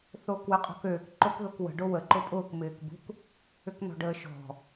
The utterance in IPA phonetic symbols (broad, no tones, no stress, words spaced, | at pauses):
θoːkwɛqʼɔ̤køːk ǃokðokwə̤ ɖowə ǃʊpʼʊːk mɪːkbṳk | ʏknɔ̤ɖəːʃɔ̤